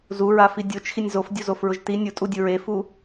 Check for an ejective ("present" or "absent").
present